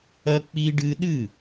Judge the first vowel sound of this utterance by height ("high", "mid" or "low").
low